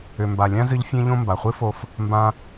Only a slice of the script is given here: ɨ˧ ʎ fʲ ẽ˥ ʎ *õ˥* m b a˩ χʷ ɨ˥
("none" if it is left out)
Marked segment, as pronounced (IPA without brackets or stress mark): õ˥